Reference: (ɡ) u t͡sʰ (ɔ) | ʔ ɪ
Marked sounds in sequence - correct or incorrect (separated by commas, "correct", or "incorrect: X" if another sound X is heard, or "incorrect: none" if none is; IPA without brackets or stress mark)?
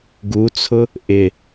correct, incorrect: ʊ